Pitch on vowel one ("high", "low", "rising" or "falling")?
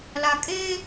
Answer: low